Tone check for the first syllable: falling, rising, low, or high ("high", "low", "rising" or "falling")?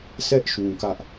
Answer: high